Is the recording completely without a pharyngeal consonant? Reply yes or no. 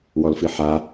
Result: no